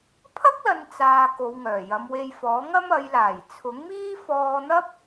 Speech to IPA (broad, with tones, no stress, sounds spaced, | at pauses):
pʰ ɐ˥ k̚ l ɐ˨ n t͡s aː˨ k o˨˧ w ŋ œː˨˩ j ɐ˨˧ m w e˧ j f ɔː˨˥ ŋ ɐ˥ m ɐ˨˧ j l aː˨˩ j t͡sʰ ʊ˨˥ ŋ m iː˥ f ɔː˧ n̪ ɐ˥ p̚